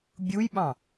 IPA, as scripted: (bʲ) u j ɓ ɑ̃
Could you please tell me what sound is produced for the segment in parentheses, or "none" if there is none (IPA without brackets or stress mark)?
bʲ